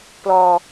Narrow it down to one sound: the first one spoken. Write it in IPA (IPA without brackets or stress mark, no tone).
p